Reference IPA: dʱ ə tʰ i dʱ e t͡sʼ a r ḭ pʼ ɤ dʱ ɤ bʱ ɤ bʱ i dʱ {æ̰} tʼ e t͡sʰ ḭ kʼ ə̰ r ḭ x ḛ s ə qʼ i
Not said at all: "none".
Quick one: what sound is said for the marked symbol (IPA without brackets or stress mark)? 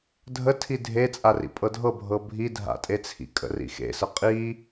a̰